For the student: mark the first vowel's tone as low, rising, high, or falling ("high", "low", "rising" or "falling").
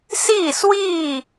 falling